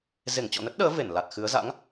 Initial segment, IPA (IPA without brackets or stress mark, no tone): z